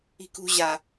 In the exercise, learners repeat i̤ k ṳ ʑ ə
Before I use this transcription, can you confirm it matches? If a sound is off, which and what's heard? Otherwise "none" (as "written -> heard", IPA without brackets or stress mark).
ə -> a